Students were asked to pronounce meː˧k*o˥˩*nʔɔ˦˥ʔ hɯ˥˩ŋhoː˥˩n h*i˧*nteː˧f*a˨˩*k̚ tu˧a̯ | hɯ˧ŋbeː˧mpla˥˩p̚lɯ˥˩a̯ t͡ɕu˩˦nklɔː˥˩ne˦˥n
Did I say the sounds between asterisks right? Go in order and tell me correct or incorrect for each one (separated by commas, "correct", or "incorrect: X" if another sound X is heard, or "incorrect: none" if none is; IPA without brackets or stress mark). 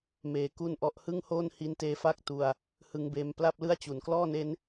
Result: incorrect: u˥˩, correct, incorrect: a˥˩